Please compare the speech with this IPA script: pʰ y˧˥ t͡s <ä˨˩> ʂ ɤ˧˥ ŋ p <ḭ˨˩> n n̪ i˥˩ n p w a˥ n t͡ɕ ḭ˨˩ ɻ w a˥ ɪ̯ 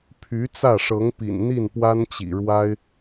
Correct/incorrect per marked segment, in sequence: incorrect: ä˥˩, correct

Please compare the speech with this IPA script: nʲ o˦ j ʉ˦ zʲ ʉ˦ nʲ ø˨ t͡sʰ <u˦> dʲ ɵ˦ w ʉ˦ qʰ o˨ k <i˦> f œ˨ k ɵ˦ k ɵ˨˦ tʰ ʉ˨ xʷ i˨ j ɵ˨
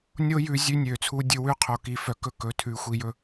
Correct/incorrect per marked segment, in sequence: correct, incorrect: i˨

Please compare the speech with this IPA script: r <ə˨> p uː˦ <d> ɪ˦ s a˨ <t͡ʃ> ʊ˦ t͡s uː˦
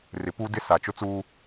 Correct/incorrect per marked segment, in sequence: incorrect: ɪ˨, correct, correct

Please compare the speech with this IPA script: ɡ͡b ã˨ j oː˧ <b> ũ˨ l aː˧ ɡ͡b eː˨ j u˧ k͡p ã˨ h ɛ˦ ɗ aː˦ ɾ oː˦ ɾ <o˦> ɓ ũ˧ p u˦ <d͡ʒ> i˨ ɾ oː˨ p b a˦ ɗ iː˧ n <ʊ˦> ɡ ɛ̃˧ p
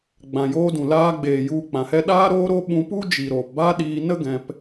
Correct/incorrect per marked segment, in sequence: incorrect: d, correct, correct, incorrect: ə˦

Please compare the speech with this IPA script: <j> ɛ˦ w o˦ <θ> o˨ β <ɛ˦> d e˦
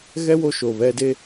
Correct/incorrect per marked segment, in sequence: incorrect: ɣ, incorrect: ʃ, correct

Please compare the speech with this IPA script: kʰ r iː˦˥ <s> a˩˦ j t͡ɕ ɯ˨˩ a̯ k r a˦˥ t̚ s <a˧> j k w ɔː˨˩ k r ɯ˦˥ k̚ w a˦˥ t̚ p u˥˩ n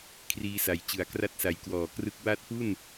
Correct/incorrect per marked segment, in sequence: correct, incorrect: a˩˦

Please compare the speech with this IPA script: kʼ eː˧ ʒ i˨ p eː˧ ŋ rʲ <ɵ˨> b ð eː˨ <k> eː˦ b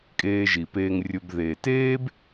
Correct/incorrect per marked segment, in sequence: incorrect: ɵ˧, incorrect: t

